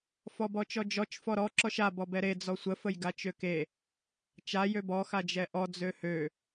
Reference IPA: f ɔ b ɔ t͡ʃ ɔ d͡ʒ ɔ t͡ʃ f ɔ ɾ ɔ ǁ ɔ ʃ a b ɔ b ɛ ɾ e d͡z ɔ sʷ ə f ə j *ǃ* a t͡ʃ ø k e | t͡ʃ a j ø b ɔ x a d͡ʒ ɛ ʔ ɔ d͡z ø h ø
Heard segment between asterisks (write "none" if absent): ɡ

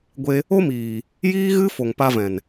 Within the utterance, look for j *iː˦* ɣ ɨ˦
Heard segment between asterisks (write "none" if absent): iː˦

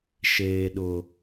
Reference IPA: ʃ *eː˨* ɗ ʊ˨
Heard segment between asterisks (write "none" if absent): eː˨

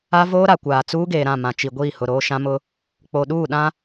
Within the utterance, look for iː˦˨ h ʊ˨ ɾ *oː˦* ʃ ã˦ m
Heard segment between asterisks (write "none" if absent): oː˦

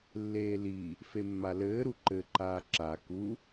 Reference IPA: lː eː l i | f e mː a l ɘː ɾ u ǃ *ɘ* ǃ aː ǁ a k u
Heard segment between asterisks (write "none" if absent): ɘ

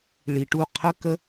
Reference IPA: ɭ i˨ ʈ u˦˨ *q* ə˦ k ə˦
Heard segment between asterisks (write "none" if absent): qʰ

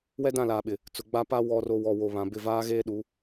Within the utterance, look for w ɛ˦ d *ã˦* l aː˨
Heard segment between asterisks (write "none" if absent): ã˦˨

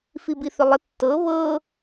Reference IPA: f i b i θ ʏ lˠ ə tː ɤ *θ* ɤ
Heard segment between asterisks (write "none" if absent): β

